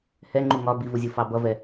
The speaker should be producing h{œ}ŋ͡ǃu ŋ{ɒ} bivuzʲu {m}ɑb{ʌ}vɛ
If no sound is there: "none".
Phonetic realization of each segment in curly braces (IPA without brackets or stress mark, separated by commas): ɛ, ɒ, f, ʌ